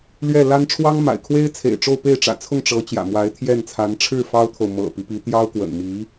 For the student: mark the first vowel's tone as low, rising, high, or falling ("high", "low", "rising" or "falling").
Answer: falling